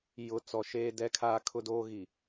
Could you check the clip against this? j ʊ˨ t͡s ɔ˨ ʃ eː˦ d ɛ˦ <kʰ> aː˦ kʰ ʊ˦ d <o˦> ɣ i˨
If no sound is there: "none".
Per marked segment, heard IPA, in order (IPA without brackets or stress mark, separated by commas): kʰ, oː˦